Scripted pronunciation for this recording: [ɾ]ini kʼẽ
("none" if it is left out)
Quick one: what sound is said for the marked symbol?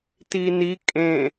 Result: t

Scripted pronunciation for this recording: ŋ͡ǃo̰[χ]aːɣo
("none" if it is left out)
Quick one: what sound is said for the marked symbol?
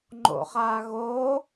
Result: χ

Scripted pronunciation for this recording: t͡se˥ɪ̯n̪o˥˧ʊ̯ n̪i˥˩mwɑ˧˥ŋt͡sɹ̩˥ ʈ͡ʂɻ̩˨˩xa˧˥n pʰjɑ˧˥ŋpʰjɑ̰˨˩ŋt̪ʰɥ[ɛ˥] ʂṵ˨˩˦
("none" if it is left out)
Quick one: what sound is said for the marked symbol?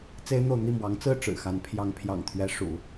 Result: ɛ˧˥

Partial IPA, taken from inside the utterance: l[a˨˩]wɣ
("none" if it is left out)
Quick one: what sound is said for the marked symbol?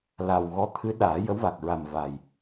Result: a˨˩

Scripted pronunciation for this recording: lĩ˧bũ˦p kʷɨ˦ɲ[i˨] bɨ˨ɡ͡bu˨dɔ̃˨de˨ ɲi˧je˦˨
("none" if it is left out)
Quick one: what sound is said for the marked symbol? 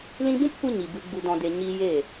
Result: i˨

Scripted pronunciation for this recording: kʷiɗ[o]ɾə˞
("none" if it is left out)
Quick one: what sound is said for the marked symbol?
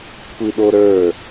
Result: o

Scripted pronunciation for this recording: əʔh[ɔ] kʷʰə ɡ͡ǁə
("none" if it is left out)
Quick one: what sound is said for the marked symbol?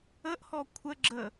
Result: ɔ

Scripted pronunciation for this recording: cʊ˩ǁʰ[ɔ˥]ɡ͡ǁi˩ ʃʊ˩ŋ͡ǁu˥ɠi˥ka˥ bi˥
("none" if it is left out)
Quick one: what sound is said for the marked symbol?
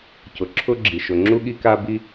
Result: ʊ˥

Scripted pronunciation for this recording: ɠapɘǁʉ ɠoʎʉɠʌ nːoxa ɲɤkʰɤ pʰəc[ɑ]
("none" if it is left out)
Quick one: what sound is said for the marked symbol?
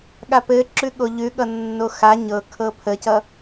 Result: ʌ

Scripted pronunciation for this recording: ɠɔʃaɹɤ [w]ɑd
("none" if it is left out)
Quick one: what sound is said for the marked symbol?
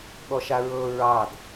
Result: ɹ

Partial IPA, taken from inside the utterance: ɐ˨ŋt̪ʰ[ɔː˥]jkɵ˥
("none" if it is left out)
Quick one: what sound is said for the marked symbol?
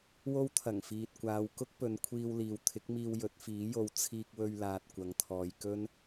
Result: ɔː˨˧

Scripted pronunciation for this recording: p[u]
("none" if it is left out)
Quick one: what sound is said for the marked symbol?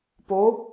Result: o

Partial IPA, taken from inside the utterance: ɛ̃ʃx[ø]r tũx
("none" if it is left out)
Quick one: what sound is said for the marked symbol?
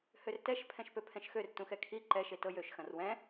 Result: ø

